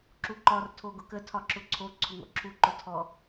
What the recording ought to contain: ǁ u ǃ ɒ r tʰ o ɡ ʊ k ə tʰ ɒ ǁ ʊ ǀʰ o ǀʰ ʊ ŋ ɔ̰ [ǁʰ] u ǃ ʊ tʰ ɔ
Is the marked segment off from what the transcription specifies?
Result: no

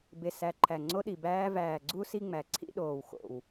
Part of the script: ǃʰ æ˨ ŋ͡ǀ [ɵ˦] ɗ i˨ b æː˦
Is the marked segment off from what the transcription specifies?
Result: yes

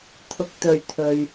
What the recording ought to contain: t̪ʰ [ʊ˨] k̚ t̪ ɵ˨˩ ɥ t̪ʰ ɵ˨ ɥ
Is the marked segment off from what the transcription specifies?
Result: no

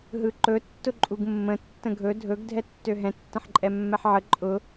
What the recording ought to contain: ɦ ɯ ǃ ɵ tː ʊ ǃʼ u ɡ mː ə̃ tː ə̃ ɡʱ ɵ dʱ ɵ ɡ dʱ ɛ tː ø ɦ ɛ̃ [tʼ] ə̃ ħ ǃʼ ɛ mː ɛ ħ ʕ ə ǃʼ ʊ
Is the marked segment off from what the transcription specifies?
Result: yes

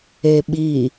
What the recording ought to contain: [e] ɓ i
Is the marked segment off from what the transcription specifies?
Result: no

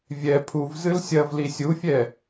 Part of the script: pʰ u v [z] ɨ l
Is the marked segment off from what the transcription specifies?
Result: no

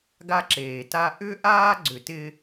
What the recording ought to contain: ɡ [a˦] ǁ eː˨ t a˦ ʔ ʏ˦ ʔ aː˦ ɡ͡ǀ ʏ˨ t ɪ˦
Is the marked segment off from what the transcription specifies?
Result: no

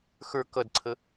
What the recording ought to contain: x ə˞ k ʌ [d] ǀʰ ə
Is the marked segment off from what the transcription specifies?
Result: no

